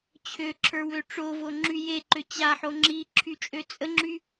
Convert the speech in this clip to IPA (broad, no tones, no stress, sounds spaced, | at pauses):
t͡ɕʰ ø ǁʰ ə˞ w ø ʈ͡ʂ o v o ŋ͡ǁ y j e ǃ ø t͡ɕ a ħ o ŋ͡ǁ i ǁʰ y t͡ʃʼ ø t͡sʼ ə ŋ͡ǁ y